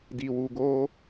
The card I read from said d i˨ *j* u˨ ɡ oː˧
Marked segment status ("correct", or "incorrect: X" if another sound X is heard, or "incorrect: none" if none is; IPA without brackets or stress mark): incorrect: w